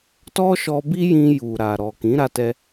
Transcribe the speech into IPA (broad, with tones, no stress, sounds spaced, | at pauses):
t ɔ˦ ʃ ɔ˧ b i˦ j ĩ˧ j u˨ ɾ a˨ ɾ ɔ˨ k ĩ˨˦ ɾ a˧ t ɛ˧